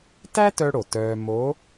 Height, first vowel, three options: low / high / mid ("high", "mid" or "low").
low